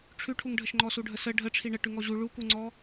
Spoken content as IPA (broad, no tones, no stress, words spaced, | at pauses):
ʈ͡ʂʰʉʈʰuŋɖʱəʃŋ͡ǃɔ suɖʱəsə ɖʱəʈ͡ʂʰi ɳəʈʉ ŋɔʑu ɭukuŋ͡ǀɔ